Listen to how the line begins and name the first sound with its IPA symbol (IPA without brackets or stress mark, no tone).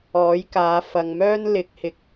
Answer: ɔː